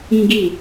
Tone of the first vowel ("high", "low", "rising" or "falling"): high